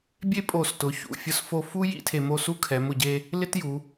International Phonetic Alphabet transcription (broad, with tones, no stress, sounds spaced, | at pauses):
bʲ e˥ pʼ o˧˩ s t ʊ˩˧ ç ṵ˩˧ fʲ ʊ˥ s f o˧ f u˥ j ḭ˥ tʰ e˧ m o˥˧ s u˥ kʰ ɛ˩˧ m ʊ˧˩ ɟ e˧ | l ɪ˥ t j u˩˧